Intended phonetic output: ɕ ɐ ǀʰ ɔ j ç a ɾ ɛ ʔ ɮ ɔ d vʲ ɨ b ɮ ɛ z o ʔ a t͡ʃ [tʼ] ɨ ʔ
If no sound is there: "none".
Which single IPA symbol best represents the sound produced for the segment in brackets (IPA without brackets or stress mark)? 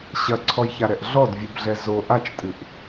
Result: tʼ